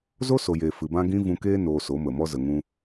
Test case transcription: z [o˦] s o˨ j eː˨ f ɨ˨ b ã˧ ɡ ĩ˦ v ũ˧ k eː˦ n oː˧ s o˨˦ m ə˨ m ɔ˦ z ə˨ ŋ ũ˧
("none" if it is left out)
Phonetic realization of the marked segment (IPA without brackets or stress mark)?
o˦